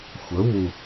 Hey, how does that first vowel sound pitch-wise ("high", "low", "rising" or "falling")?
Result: rising